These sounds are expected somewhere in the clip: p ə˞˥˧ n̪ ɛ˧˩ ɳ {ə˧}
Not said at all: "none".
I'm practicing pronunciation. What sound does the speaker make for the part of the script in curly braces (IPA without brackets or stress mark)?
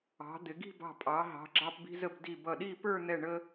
ə˧